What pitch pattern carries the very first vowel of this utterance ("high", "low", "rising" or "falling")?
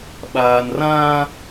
low